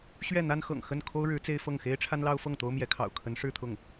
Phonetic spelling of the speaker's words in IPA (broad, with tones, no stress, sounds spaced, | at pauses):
ɕ ɥ ɛ˥˩ n̪ a˥ n x ɤ̰˨˩ ŋ x ə˥˩ n kʰ o˥ ʊ̯ ɻ ɻ̩˧˥ t͡s e˥ ɪ̯ f ɤ˥˩ ŋ x e˥ ɪ̯ ʈ͡ʂʰ a˥ n l ɑ˥ ʊ̯ f ɤ˥˩ ŋ t̪ o˥ ʊ̯ m j ɛ˧˥ kʰ ɑ̰˨˩ ʊ̯ kʰ ə˧˥ n ʂ ɻ̩˥˧ t̪ʰ ʊ˥˩ ŋ